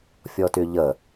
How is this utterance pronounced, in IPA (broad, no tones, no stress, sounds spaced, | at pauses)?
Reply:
fʲ ɔ t y ʎ ə